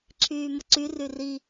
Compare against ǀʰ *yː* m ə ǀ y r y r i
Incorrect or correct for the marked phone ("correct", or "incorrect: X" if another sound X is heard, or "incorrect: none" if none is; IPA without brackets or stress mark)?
correct